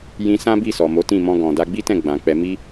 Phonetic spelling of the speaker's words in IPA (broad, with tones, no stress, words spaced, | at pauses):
jĩ˧sã˦bi˦˨ sɔ˨mo˨˦ tĩ˦˨mɔ̃˧ɡɔ̃˨da˧ ɡ͡bi˦tɛ̃˦˨ ɡ͡bã˨k͡pɛ˧ mi˦